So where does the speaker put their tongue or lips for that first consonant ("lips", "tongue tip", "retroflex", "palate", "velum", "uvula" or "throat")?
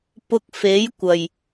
lips